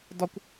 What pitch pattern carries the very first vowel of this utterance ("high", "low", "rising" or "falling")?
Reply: high